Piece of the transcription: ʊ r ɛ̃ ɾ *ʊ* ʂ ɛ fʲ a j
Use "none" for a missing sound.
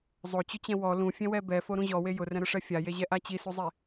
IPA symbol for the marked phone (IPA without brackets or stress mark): ʊ